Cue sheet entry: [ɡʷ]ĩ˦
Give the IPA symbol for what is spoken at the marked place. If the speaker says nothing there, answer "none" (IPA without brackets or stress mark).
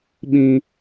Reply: ɓ